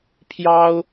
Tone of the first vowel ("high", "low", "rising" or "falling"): high